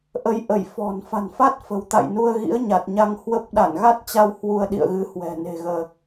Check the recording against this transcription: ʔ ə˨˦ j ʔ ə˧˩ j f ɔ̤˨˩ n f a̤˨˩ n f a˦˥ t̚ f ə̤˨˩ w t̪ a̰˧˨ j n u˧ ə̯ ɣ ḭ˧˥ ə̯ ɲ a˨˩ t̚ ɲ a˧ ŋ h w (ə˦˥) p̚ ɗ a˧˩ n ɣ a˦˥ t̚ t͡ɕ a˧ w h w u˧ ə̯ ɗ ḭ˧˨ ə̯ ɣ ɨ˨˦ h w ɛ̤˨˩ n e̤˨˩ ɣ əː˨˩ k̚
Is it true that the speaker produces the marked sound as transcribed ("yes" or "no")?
yes